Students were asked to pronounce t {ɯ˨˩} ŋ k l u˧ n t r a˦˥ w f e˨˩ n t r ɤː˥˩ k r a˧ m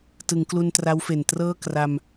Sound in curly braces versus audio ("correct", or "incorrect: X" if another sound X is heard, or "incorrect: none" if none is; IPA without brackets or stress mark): incorrect: ɯ˩˦